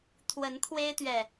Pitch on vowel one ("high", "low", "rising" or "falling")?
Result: rising